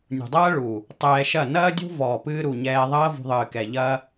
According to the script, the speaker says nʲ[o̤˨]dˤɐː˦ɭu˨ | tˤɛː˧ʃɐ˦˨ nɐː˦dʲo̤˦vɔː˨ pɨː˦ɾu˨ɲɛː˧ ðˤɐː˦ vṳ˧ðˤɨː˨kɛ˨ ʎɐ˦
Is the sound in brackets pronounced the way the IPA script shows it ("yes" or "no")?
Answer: no